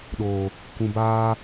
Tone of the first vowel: low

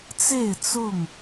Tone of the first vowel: falling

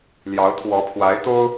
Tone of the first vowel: rising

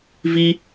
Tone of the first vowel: low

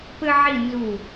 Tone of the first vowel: high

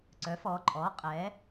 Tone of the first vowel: rising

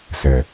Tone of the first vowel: low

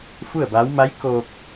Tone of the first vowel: falling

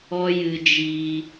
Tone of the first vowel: high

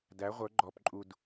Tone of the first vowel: rising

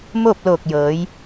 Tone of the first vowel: falling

